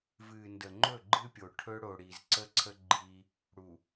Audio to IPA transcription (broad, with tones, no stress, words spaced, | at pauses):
vɨ˨ ndə˨ŋ͡ǃɵ˦˨ɡ͡ǃɨ˦pʲo˨ ʈʰɵ˦ɽo˨ɽi˨z ǀə˦ǀʰə˦ ɡ͡ǃi˦ | ɽu˨